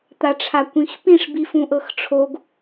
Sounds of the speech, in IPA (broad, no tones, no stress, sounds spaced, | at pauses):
t̪ a ʈ͡ʂʰ a kʷ ĩ x p ĩ ʂ b i f ũ ʔ ɤ x ʈ͡ʂʰ o ɡ